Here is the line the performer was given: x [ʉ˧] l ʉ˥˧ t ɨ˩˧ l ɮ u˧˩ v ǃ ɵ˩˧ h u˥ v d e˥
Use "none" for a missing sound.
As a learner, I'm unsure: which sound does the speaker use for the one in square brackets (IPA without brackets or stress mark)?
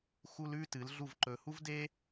u˧